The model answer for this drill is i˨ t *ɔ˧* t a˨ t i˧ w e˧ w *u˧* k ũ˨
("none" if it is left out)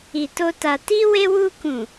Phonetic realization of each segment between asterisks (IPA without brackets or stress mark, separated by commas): o˧, u˧